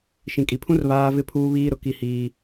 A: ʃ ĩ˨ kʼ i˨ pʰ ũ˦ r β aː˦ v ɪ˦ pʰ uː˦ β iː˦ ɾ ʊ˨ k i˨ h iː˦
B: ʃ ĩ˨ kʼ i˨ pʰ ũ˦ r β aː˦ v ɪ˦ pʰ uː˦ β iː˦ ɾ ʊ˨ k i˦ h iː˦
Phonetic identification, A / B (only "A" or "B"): B